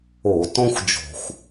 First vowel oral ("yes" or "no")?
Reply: yes